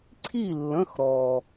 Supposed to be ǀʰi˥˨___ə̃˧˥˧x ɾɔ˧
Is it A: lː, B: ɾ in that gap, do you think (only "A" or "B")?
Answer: A